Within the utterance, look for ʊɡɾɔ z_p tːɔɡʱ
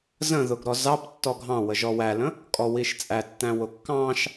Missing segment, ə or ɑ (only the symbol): ɑ